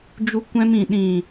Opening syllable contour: high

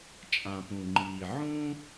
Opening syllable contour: low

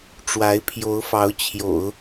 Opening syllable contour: rising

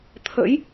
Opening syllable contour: rising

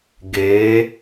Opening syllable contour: rising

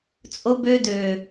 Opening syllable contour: high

